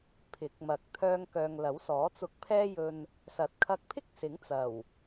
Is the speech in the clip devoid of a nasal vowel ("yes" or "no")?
yes